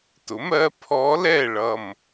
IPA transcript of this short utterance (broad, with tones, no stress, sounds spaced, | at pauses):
t ʊ˩˥ m ɜ˧˥ pʰ ɔ˧˥ l ɛ˥˨ ɭ ʌ˧˩ m